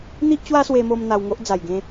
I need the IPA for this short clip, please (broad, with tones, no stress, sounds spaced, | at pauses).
n̪ i˦ ʔ t͡ɕ w a˦ s w e˧ m o˧ m n̪ a˧ w ŋ o˦ ʔ d͡z a˨˩ j ɡ ẽ˧